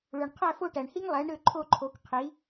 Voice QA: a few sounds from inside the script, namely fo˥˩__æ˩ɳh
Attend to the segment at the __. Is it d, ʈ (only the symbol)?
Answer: ʈ